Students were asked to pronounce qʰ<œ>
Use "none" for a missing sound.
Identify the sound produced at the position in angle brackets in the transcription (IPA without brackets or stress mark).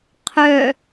œ